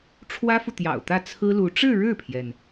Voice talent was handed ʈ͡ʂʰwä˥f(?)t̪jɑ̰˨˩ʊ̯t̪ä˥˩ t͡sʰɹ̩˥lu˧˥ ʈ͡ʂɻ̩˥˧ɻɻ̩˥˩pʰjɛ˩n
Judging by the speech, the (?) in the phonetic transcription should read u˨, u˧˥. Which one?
u˨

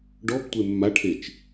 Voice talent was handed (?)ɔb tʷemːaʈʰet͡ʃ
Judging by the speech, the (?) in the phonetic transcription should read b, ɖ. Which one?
ɖ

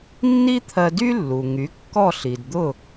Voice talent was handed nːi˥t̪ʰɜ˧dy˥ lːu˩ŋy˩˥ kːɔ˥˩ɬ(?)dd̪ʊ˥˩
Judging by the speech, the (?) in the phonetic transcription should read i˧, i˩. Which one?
i˩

